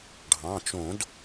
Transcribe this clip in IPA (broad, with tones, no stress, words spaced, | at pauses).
ɖʱɑ̃˩˧˩t͡ʃõ˨˩˦d